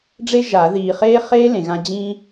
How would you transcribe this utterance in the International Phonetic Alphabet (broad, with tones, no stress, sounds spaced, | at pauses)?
ɖ͡ʐ e˥ ʒ a˨˩˦ ð iː˨ χ eː˥ χ eː˥ l ẽ˨ ɣ ã˥ d͡ʑ ĩ˥